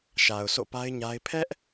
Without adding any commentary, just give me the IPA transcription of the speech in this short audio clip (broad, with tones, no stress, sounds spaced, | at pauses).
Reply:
ʃ a˨ ʊ̯ sʰ o̰˦˨ p a˦ ɪ̯ ɲ a˦ ɪ̯ pʰ ɛ˦ ʔ